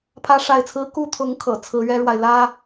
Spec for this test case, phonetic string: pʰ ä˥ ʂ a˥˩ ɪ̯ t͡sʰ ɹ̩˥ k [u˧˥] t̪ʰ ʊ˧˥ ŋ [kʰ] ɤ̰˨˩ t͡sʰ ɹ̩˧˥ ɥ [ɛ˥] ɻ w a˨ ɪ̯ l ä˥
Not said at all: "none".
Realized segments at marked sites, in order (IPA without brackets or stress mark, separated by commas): u˥˩, kʰ, ɛ˥